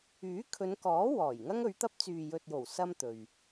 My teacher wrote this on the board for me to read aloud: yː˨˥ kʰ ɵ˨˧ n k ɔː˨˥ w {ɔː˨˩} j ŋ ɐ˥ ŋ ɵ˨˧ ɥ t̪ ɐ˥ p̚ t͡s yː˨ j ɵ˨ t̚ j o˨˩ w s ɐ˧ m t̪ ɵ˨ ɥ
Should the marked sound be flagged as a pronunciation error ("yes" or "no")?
no